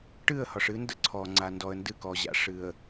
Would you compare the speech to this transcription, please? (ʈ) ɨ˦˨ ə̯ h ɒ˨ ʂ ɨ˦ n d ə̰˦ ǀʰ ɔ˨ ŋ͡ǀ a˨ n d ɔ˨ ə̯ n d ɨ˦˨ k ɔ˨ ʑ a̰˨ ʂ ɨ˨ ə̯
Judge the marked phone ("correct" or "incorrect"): correct